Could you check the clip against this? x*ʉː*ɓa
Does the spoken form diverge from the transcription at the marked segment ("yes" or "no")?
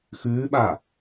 no